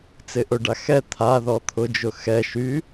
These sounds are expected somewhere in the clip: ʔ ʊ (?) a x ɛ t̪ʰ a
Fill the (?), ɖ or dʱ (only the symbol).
ɖ